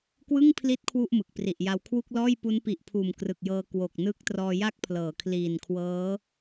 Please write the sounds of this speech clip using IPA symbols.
k w ɯ˥˩ ŋ pʰ l i˦˥ t̚ kʰ w u˥˩ ʔ m ɯ˨˩ k̚ p r i˨˩ ʔ j a˧ w kʰ w u˥˩ k̚ l ɔː˥˩ j p u˦˥ n p i˨˩ ʔ pʰ uː˨˩ m k r ɯ˨˩ k̚ j ɤː˧ k w o˨˩ k̚ n ɯ˦˥ k̚ t r ɔː˧ j a˦˥ k̚ pʰ l ɤː˩˦ kʰ l iː˨˩ n kʰ w ɤː˦˥

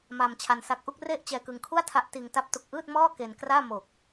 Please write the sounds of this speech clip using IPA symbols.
m aː˧ m t͡ɕʰ a˧ n s a˦˥ k̚ ʔ u˥˩ k̚ r e˥˩ ʔ t͡ɕ ɛː˧ k ɯ˧ ŋ kʰ u˥˩ a̯ tʰ a˦˥ ʔ t iː˧ ŋ t a˦˥ p̚ t u˨˩ k̚ ʔ ɯː˥˩ t̚ m ɔː˥˩ k e˧ n k r aː˥˩ m o˨˩ k̚

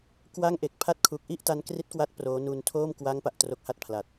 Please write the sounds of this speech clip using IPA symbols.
k w a˥˩ ŋ ʔ e˨˩ k̚ pʰ a˦˥ t̚ kʰ u˨˩ k̚ ʔ i˥˩ ʔ t a˦˥ n k r i˦˥ t̚ k w a˦˥ t̚ p r oː˦˥ n u˧ n tʰ oː˥˩ m k w a˦˥ ŋ p a˨˩ ʔ t r o˦˥ k̚ h a˥˩ t̚ pʰ l a˨˩ t̚

